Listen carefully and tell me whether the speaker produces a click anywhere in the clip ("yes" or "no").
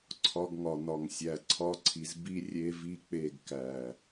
yes